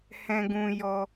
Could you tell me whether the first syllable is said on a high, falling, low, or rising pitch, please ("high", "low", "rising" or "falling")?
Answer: high